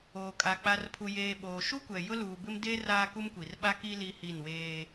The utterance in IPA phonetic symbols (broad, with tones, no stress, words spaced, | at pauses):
oː˨kʼa˨ k͡pa˨rpʰu˨jeː˨ɓoː˨ ʃu˦kʷɛ˨jʊ˦ luː˨bɪ˦m de˦ raː˦ku˦mkʷi˨r ɓa˦ki˦ li˦hi˦˨nweː˦